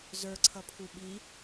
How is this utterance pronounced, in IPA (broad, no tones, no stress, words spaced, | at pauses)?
zə˞ǀʰʌ pʰuɓi